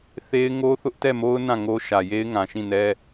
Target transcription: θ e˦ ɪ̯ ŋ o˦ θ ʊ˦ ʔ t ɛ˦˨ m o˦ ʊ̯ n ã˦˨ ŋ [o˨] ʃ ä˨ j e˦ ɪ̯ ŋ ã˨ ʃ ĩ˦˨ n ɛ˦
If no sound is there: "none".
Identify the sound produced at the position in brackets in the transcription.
o˦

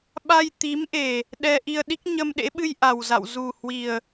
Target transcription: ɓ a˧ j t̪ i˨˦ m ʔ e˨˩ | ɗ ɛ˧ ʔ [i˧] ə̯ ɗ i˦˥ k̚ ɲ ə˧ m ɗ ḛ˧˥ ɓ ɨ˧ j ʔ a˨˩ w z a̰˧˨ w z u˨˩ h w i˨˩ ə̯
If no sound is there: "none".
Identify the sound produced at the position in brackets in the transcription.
i˧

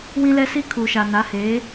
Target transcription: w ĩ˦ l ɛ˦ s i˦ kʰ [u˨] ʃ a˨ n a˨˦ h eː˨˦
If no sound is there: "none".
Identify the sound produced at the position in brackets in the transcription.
u˨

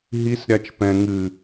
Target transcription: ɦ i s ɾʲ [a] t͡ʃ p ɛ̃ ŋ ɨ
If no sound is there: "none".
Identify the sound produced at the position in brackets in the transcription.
a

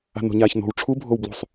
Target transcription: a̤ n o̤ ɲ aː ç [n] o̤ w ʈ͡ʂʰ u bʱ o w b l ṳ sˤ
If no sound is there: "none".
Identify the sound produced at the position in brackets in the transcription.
n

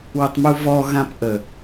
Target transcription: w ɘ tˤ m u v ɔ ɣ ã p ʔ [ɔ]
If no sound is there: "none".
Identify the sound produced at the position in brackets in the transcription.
ə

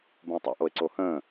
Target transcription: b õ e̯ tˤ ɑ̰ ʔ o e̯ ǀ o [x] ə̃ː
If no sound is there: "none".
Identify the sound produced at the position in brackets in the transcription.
h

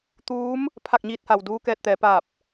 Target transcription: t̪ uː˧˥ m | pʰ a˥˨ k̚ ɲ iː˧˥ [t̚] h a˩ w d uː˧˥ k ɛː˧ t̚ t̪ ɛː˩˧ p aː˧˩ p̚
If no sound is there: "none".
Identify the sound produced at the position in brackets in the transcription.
t̚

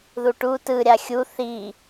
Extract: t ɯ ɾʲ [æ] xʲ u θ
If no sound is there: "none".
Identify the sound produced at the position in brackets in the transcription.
a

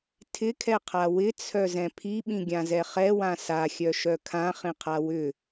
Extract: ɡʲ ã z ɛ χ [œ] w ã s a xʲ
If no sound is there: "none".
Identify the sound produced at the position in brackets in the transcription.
ɛ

